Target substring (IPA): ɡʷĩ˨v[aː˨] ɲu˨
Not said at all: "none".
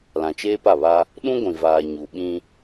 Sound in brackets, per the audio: aː˨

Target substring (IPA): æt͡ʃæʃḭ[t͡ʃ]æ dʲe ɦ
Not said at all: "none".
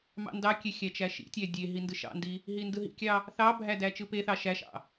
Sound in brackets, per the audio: tʲ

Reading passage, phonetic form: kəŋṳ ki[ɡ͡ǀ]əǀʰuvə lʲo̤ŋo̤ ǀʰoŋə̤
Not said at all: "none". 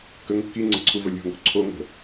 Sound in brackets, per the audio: ŋ͡ǀ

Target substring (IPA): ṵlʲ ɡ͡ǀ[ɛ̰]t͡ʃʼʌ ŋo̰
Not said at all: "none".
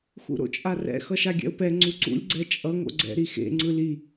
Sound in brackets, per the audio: ɛ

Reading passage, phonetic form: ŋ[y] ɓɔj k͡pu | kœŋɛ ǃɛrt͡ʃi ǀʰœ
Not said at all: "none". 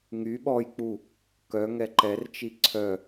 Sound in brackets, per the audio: y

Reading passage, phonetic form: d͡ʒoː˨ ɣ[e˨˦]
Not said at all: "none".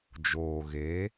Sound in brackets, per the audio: e˨˦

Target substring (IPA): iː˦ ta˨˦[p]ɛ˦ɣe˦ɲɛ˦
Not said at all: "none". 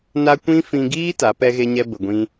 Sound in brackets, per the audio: p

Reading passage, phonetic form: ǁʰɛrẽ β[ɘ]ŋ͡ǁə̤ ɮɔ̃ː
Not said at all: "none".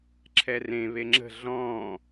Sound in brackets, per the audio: e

